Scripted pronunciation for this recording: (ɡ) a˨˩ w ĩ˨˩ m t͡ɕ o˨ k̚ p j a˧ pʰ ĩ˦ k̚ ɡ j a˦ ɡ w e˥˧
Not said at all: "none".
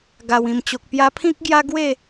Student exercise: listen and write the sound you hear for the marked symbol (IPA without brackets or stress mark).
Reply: ɡ